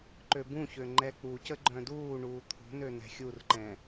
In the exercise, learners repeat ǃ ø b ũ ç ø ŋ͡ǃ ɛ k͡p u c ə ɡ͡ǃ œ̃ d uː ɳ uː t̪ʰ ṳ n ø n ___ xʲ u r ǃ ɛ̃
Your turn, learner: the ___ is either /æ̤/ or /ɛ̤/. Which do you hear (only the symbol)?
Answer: ɛ̤